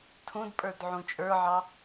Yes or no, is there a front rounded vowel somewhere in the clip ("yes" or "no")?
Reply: no